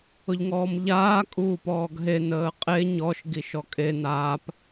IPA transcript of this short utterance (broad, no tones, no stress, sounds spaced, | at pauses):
ʊ ʎ ŋ ɔː m ʎ aː kʼ uː p ɔː ɡ ɦ e n əː qʼ e ɲ ɔ ʃ ɡ i ʃ ɔ kʼ e n aː p